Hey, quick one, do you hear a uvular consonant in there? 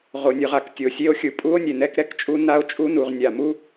yes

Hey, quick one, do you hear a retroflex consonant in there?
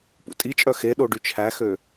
yes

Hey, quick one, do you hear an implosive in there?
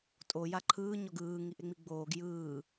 no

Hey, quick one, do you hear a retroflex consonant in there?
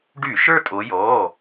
yes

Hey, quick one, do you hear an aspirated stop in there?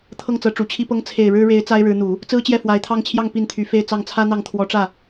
yes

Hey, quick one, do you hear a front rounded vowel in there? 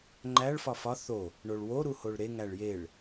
no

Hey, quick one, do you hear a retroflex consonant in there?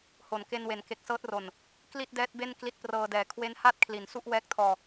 no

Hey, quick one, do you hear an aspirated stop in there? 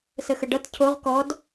yes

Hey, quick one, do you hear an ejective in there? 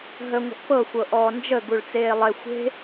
no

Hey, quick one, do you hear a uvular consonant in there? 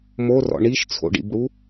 no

